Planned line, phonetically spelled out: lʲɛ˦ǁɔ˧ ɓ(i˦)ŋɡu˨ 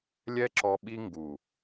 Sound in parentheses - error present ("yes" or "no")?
no